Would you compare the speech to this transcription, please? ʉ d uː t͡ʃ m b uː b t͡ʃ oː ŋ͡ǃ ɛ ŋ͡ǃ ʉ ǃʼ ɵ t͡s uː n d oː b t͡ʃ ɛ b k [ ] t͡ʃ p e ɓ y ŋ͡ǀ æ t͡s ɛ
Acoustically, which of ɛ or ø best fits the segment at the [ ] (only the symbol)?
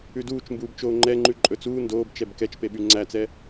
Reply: ɛ